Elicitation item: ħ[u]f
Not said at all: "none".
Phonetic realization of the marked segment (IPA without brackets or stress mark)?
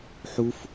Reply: u